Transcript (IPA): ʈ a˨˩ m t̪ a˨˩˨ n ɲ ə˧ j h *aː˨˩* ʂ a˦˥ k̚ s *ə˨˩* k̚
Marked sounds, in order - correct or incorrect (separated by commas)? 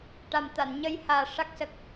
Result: correct, correct